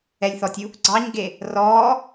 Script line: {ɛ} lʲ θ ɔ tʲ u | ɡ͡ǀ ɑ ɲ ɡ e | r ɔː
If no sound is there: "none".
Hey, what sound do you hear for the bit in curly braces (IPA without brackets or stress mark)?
ɛ